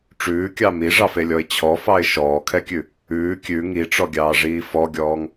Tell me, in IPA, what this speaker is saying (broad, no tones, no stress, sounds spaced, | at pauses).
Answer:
ʈ͡ʂ ʉː kʲ ɑ m i ʐ ɑ f e lʲ ɔ ɪ̯ t͡ɕʰ ɔ f ɑ ɪ̯ ʃ ɔː kʰ ɛ kʲ ʉ | ʉː kʲ ʉ ŋ i ʈ͡ʂ ɔ ɡʲ ɑː ʐ iː f ɔ ɡʲ ɔː ŋ